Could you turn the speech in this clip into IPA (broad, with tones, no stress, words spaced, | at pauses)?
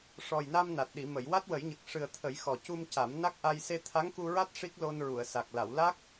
ʂɔ˨˩jna˧m na˨˩t̚ɗi˨˩˨mə˨˩˨j wa˦˥t̚wə˨˩˦jɲə˨˩k̚ ʂɨ˨˩ə̯t̪ʰə˨˩˦j xɔ˨˩cu˧mca˨˩˦m na˦˥k̚ʔa˧j se˧t̪ʰa˧˥ŋku˧ɹa˦˥t̚ ʂi˦˥k̚lo˧nɹu˨˩˨ə̯ sa˨˩k̚la˨˩˨w la˦˥k̚